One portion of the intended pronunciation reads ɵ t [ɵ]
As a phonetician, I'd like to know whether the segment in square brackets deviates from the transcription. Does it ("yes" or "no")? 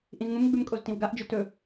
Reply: no